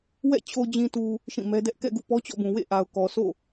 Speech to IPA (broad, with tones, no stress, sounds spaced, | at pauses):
w ɛ̰˦˨ t͡ɕʰ o˨ d͡ʑ ĩ˨ t u˨ | ʃ ĩ˦˨ m ɛ˦ d ɛ˦ ʔ k ɛ̰˦˨ ɡ ṵ˦˨ p ɔ˦ t͡ɕ ɔ̰˦˨ b ũ˨ w ḛ˦˨ ʔ a˨ ʊ̯ k ɔ˨ s o̰˦˨